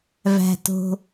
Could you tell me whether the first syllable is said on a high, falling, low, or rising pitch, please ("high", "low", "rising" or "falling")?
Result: low